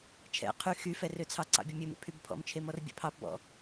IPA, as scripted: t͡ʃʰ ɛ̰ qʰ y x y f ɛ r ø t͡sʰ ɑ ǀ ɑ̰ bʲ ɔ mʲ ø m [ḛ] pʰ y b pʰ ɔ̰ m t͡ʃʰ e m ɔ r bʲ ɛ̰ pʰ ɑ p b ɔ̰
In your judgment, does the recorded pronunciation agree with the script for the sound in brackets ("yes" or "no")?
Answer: yes